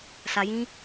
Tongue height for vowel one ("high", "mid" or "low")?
low